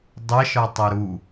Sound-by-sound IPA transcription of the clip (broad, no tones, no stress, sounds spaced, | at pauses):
dˤ ə ʃ ɒ tˤ ə ɾ u